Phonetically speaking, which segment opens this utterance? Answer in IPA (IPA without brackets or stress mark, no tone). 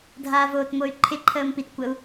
dʱ